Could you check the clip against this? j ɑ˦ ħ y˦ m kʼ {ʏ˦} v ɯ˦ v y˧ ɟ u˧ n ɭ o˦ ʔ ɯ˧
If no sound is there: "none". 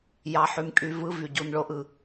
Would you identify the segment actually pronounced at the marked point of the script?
y˦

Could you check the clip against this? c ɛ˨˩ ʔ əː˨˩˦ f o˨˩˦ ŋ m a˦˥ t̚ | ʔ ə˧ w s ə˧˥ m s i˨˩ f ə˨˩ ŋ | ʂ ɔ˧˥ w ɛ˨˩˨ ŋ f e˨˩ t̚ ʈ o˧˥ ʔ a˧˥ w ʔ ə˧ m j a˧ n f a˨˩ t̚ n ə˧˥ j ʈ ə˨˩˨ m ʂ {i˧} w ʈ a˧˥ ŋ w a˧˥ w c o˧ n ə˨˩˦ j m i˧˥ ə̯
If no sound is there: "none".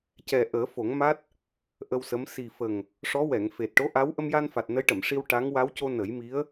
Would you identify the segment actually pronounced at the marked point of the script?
i˧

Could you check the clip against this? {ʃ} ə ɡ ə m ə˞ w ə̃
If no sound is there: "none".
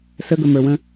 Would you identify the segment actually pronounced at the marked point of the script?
s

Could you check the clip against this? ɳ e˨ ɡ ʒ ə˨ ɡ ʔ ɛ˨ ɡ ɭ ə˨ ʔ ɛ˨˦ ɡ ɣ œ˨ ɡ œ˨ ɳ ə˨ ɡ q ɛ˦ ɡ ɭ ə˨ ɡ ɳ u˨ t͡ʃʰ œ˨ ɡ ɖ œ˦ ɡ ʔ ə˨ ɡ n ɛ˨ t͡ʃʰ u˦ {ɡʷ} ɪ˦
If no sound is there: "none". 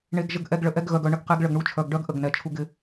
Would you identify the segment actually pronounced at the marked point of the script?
ɡ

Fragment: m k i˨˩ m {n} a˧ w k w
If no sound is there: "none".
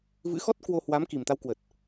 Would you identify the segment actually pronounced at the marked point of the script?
t̪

